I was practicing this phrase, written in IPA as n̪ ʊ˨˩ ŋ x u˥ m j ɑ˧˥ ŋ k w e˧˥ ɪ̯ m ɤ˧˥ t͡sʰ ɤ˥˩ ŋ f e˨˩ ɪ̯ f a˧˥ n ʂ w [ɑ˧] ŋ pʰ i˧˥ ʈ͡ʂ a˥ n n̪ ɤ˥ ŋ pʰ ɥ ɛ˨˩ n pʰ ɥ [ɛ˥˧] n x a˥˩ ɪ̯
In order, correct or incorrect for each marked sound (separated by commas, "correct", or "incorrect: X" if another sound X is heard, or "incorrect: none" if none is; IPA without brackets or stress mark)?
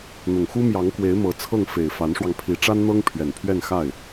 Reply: correct, correct